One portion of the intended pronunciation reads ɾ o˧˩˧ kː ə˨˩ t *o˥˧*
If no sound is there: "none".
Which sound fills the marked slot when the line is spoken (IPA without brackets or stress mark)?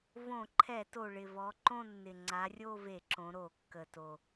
o˨˩